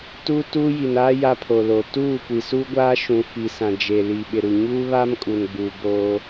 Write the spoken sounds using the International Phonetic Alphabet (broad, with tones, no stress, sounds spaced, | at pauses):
t uː˦ t uː˦ j i˨ n aː˦ j a˦ pʰ o˨ l o˨ t uː˦˨ kʷ i˨ s uː˦ ɡʷ aː˦ ʃ ũ˨ f i˨ s ã˨ d͡ʒ e˨ l i˨ ɓ ɪ˨ ɾ u˨ ɲ uː˦ β a˦ m kʼ u˨ n ɡ͡b u˨ b o˦